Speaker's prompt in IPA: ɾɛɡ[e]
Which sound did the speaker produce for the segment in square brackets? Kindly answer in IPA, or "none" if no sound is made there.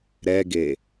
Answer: e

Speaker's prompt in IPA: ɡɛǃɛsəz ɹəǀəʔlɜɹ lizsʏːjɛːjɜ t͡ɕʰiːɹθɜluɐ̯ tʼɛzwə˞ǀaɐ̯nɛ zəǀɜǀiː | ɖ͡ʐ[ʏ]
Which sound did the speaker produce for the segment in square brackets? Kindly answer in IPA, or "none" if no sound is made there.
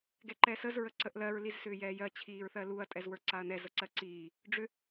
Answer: ʏ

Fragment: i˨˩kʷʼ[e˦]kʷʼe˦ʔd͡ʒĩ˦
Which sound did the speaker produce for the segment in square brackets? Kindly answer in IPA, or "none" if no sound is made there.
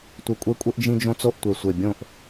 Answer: e˦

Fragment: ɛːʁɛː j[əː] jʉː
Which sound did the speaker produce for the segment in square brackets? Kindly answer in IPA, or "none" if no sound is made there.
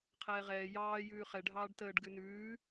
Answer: ɑː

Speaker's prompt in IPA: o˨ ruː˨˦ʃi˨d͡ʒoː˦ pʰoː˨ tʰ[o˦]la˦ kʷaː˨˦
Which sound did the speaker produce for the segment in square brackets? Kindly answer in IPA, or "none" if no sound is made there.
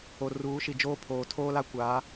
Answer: oː˦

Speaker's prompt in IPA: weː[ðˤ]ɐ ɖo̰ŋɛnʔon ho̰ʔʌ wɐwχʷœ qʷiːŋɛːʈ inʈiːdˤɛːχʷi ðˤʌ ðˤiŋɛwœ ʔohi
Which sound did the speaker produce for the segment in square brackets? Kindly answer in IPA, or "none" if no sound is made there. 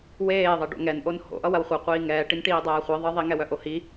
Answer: ðˤ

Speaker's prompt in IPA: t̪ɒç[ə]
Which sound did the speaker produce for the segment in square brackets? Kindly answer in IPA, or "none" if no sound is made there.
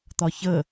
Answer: ə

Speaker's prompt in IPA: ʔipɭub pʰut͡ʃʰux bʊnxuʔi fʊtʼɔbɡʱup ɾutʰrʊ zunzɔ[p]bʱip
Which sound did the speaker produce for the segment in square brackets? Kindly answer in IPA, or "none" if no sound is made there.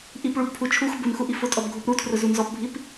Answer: p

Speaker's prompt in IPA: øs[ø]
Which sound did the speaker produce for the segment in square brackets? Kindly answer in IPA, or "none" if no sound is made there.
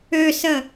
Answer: ə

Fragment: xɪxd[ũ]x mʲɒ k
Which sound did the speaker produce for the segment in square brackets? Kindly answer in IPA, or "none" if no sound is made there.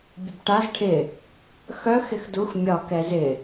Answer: u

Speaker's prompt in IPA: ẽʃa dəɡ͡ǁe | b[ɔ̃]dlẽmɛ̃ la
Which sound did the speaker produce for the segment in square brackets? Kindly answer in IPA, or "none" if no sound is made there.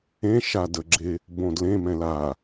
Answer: õ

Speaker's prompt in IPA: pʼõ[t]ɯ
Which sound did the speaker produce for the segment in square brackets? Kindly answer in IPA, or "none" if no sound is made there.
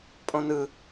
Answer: n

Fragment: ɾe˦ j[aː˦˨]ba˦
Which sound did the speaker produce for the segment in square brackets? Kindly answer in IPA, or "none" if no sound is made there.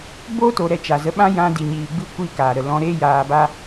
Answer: aː˧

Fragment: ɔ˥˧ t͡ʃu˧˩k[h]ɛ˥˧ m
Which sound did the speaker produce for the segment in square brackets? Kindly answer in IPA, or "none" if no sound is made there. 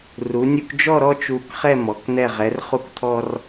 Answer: χ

